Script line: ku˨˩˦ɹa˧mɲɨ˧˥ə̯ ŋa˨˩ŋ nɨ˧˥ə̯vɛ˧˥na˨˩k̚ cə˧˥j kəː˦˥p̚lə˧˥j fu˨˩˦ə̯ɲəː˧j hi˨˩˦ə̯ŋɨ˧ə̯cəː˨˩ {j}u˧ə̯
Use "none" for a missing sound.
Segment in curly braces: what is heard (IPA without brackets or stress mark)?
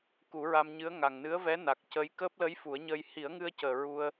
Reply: ɹ